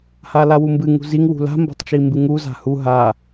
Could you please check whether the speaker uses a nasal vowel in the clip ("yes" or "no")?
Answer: no